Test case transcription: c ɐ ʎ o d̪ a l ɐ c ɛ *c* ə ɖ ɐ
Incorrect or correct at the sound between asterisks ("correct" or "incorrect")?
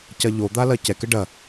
incorrect